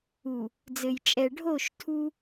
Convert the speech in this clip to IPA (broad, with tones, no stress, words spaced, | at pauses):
u˨ | d͡zɘ˨jt͡ʃʼɛ˨ ɖʱo˦˨ʃtʰu˦